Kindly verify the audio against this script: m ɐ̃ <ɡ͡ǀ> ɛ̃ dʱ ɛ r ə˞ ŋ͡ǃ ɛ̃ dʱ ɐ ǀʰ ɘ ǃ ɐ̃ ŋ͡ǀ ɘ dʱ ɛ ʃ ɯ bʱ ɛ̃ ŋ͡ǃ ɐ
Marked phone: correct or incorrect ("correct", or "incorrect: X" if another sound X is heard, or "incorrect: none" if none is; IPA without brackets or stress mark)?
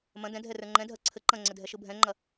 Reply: incorrect: d